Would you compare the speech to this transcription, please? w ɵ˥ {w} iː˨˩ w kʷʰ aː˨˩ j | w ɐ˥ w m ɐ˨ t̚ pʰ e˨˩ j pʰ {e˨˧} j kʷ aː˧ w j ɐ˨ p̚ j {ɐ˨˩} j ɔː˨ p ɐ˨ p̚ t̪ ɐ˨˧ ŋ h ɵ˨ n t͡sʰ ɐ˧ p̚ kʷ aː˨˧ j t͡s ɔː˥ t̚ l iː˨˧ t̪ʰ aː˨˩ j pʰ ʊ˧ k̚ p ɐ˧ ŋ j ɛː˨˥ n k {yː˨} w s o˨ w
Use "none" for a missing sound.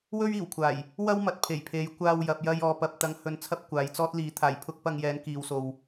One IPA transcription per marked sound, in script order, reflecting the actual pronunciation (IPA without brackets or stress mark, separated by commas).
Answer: ɥ, e˨˧, ɐ˧, iː˨